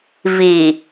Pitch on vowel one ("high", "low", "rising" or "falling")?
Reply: low